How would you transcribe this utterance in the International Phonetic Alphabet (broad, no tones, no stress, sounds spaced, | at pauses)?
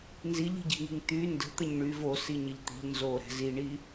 n z i ʎ i̤ ɟ i̤ ŋ i̤ ŋ t̪ y n d ə̤ t̪ ə ɲ ɳ y v o s i ɲ ə ʎ t̪ i̤ ʎ n z o ɾ ɛ̤ z i ɳ i